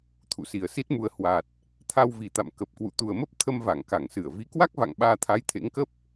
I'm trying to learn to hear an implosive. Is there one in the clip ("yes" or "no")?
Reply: yes